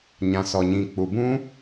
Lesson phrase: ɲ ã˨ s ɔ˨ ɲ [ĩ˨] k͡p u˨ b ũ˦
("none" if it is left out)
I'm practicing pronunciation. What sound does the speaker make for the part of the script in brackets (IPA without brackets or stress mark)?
ĩ˨